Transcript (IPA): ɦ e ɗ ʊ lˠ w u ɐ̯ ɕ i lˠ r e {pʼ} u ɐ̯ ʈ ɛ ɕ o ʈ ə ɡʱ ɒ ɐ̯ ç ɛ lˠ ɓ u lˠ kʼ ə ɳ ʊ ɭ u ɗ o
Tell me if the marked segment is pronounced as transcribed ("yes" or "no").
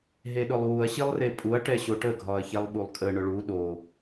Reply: yes